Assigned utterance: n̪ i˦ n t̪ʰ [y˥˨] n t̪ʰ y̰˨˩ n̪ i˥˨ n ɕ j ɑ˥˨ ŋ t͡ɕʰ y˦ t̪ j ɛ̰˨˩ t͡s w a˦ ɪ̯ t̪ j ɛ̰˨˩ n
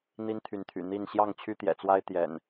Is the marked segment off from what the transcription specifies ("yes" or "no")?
yes